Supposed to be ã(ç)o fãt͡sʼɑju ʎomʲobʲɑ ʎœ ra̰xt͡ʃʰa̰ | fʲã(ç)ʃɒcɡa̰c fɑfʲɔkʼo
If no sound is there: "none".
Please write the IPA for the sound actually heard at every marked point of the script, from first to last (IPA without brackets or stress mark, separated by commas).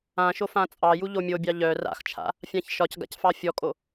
ʃ, ç